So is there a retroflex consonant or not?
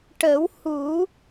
yes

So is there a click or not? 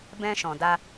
no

